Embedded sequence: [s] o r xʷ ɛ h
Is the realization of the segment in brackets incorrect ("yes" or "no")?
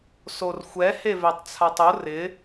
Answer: no